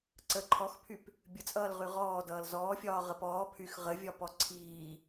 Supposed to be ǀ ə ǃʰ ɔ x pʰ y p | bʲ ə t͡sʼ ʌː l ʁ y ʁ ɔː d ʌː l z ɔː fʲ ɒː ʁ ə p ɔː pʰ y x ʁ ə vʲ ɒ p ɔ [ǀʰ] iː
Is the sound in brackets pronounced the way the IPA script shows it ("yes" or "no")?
yes